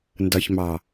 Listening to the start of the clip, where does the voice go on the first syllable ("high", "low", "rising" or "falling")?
low